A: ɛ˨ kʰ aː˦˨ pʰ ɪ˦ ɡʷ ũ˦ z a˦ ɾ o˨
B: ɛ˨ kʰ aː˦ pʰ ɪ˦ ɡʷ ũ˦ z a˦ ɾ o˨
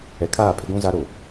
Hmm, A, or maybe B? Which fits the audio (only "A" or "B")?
A